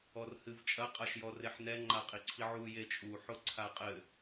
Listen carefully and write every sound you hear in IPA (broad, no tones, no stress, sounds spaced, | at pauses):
ɔ r h ɨ v t͡ʃʼ ɐ qʼ a ʃ j ɔ r e ħ n ɛ ŋ͡ǃ a qʼ i ǀʰ i ʕ u j e t͡ʃʼ u ħ o ǀʰ a qʼ ɘ